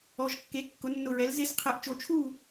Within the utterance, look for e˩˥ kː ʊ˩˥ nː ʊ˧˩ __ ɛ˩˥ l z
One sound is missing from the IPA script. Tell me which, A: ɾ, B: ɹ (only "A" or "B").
B